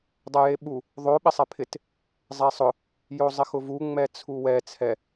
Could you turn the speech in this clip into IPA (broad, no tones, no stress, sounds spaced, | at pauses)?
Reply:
dˤ ɛ j e ɓ u | ðˤ o ɓ ɪ sˤ ɛ pʰ ɪ t | zˤ ɛ sˤ ʊ | j o zˤ ɪ x ʊ v u ŋ͡m ɛ t͡sʰ u w ɛ t͡sʰ ɛ